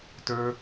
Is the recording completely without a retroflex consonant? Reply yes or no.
yes